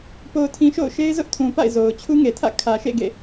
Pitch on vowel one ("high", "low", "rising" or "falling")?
low